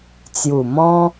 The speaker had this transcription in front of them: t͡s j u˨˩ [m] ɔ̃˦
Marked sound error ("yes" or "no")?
no